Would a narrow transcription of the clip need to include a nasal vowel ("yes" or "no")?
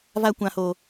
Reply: yes